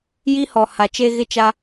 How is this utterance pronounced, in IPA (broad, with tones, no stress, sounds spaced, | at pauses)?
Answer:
j i˦ h ɔ˨ h a˨ t͡ʃ e˦ ɣ ɪ˦ t͡ʃ a˦